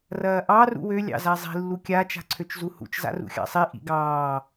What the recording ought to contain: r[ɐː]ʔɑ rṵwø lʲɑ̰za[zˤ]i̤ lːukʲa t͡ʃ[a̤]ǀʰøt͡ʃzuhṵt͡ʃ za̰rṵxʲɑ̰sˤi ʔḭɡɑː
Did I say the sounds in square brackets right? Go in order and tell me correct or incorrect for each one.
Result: correct, correct, correct

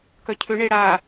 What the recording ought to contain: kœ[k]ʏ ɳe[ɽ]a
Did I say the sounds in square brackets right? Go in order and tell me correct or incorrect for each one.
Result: incorrect: cʰ, correct

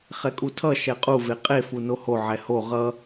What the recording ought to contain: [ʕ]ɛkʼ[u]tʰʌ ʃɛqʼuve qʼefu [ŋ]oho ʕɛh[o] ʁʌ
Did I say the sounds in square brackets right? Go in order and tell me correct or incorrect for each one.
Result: incorrect: χ, correct, incorrect: n, correct

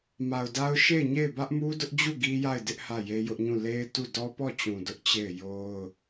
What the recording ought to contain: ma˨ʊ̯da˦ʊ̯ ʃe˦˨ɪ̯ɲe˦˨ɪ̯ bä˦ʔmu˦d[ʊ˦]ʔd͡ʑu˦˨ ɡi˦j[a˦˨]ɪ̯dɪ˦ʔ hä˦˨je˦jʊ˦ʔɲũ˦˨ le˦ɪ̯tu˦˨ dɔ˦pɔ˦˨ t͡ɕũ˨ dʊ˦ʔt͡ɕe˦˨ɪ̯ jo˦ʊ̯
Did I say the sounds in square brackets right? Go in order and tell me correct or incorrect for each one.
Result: correct, correct

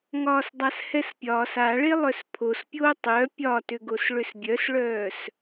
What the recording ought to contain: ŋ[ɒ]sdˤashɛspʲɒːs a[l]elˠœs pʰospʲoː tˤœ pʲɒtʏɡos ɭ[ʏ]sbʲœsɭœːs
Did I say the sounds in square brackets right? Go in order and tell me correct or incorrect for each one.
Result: incorrect: ɒː, incorrect: ɭ, correct

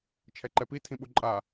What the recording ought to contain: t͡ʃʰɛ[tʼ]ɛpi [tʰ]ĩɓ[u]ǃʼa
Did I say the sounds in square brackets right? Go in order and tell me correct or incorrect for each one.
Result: incorrect: ǃ, correct, correct

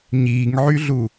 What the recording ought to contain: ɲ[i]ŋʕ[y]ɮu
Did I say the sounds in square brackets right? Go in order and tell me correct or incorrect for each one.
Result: incorrect: iː, correct

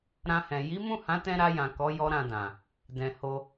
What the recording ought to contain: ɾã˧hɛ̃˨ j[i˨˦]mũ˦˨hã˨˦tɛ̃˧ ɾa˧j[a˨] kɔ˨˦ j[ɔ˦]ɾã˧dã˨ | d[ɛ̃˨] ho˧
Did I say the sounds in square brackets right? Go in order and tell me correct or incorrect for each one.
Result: correct, incorrect: ã˨, correct, correct

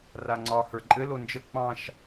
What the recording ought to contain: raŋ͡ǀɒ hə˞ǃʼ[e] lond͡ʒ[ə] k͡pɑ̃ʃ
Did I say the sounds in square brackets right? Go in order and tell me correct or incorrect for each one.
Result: incorrect: ɘ, correct

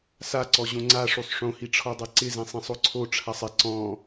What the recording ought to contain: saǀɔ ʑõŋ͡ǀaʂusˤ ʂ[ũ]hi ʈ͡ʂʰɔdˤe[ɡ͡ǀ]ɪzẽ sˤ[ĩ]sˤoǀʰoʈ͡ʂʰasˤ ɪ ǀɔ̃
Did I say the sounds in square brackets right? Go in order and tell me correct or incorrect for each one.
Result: incorrect: õ, incorrect: ǀ, correct

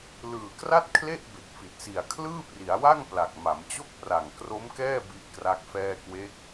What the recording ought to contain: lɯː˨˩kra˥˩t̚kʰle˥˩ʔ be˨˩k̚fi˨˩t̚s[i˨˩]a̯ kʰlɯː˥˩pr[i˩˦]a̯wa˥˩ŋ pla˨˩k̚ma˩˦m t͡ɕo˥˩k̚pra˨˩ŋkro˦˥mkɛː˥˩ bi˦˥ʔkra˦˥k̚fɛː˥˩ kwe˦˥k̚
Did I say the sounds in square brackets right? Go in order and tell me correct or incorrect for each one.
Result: correct, correct

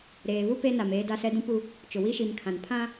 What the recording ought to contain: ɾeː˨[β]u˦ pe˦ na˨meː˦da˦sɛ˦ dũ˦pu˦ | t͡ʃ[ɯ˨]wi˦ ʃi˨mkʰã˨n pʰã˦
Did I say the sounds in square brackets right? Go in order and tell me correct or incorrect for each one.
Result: correct, incorrect: ʊ˨

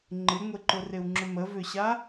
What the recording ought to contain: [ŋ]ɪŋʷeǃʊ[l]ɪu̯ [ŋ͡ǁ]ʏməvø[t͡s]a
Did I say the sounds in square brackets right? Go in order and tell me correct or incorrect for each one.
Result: incorrect: ŋ͡ǃ, incorrect: r, correct, incorrect: ɕ

